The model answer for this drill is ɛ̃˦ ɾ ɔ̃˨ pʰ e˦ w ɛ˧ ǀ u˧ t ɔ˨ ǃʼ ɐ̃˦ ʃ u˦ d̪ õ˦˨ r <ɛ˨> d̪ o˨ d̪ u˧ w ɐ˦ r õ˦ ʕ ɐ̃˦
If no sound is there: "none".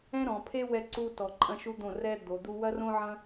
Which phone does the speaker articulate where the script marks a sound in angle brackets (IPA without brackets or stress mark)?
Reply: ɛ˦